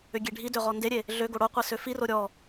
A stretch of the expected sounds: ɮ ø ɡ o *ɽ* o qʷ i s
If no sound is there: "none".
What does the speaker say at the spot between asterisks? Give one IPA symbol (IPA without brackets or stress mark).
ɽ